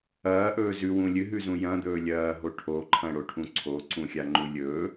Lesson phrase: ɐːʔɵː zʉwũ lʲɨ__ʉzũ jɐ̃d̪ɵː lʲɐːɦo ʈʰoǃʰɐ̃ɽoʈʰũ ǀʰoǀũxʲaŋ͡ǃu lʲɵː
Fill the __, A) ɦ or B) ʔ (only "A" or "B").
A